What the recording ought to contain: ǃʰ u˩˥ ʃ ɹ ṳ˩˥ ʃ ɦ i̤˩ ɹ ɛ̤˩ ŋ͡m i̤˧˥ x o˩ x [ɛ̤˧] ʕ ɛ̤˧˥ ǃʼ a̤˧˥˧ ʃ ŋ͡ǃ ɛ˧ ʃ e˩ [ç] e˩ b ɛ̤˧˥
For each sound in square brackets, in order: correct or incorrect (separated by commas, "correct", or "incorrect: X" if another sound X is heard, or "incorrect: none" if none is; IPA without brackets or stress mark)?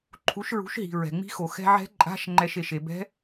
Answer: correct, incorrect: ʃ